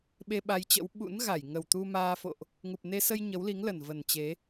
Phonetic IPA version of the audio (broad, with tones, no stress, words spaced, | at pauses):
ɓe˧ɓa˧jt͡ɕə̰˧˥w ɓṵ˧˥nɣa˧˩j ŋə˨˩wt̪u˧maː˧fo̰˧˨ʔ | ŋu˨˩p̚ne˧ sə˧j ɲə˨˦wli˨˦ŋlə˨˩n və˨˩nt͡ɕe˨˦